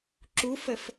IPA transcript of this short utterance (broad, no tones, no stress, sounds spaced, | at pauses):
ǁ u f ə f